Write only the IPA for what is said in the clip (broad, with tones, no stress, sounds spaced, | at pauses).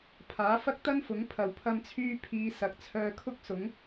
pʰ aː˨˥ f ɐ˥ k̚ t̪ ɐ˥ n f ʊ˨˥ ŋ pʰ ɐ˨ w pʰ ɐ˧ m t͡sʰ yː˧ pʰ iː˨˧ s ɐ˨ k̚ t͡sʰ œː˧ kʰ ʊ˥ k̚ s ʊ˨˥ ŋ